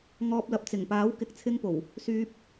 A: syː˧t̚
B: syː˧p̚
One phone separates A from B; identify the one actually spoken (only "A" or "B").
B